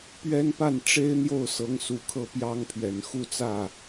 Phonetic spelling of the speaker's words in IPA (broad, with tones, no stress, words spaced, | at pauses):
pɥɛ˥n pa˥˩nʈ͡ʂe˥ɪ̯n̪jo˥˩ʊ̯sɤ˧˥ŋ su˨˩kʰɤ˥˩pjɑ˥ŋpʰɥɛ˨˩n xu˥˧t͡sä˥˩